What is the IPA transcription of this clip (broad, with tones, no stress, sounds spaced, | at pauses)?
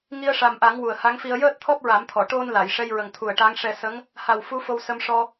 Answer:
ŋ i˧ ə̯ ʂ a˨˩ m ʔ a˨˩˦ ŋ w u˨˩ ə̯ h a˧˥ ŋ f i˧ ə̯ j əː˦˥ t̚ t̪ʰ ɔ˦˥ p̚ ɹ a˨˩˦ m t̪ʰ ɔ˨˩˨ ʈ o˧ n l a˨˩˨ j ʂ ɛ˧ j ɹ ə˨˩ ŋ t̪ʰ u˨˩ ə̯ ʈ a˧˥ ŋ ʂ ɛ˧ s ə˧˥ ŋ | h a˨˩ w f u˧˥ f o˧ w s ə˧ m ʂ ɔ˧